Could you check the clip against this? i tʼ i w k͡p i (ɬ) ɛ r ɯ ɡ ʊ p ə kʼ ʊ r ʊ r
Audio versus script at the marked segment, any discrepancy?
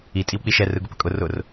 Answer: yes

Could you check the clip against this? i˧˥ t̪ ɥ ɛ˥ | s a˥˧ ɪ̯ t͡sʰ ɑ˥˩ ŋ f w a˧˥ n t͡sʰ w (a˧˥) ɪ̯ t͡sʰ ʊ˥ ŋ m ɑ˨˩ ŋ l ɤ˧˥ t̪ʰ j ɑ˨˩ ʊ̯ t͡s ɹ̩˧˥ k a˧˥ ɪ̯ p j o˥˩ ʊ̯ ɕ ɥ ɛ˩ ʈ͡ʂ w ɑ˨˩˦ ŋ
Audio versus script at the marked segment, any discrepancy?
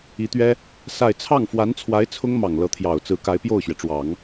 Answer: no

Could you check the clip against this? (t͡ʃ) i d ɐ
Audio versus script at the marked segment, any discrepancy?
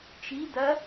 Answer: no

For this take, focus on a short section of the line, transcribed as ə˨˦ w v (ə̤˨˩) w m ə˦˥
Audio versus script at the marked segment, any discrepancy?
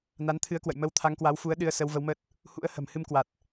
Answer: yes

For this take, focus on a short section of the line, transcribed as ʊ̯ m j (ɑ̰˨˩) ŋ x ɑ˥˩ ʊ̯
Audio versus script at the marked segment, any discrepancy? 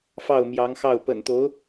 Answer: yes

